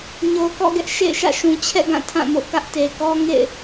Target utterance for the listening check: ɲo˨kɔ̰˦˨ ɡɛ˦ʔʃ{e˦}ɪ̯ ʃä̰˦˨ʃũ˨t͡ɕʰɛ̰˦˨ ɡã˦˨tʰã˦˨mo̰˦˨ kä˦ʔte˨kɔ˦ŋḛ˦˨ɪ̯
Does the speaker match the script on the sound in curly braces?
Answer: no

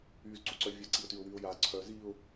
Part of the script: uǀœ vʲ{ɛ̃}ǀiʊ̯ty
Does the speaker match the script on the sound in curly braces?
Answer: no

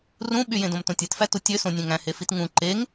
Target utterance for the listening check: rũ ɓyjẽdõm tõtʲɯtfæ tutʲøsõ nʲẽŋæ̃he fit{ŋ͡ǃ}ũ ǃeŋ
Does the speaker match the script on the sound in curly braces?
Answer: no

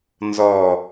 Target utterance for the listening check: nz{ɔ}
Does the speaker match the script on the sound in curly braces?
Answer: yes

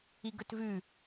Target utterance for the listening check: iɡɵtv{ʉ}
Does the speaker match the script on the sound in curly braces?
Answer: yes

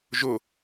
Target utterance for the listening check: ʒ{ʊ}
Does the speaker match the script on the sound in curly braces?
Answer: yes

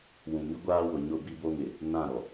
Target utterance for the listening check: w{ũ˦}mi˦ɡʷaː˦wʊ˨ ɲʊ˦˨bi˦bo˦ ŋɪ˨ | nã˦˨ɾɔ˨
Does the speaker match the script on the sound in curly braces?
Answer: no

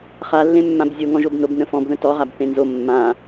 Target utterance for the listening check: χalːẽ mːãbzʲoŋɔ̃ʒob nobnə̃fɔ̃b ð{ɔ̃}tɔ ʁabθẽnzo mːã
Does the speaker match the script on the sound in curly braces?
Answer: no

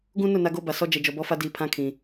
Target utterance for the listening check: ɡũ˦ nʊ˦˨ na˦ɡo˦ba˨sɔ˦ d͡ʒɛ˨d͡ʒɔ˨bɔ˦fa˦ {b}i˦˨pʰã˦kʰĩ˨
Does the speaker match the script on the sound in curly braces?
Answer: no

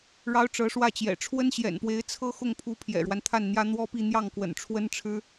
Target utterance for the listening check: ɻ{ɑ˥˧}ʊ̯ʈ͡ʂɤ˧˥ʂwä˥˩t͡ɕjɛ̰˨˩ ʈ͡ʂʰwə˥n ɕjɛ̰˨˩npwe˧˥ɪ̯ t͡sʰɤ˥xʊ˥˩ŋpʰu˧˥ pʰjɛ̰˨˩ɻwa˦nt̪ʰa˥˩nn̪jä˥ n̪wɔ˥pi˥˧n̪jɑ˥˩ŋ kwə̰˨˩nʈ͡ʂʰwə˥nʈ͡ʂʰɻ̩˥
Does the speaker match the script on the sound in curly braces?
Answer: no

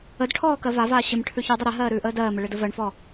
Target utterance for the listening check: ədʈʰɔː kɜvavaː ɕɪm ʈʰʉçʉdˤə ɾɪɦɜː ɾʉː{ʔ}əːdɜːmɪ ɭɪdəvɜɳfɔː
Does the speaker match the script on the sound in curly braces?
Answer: yes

